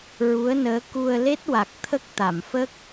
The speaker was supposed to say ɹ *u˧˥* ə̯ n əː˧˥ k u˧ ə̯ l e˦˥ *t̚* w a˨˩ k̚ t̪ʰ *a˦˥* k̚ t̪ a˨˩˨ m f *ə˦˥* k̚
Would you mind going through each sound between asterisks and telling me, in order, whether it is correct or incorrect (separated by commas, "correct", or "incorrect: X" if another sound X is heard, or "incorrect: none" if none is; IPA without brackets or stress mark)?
correct, correct, incorrect: ə˦˥, correct